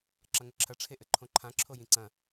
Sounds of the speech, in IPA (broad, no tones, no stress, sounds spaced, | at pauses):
ǁ ɐ ŋ ɘ ǁʰ ɐ ʈ͡ʂʰ e ʔ ɘ ǃʰ õ ǃʰ ã ǁʰ o j ĩ ǀ ɐ̃